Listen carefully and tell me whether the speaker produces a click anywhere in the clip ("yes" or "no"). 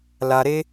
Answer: no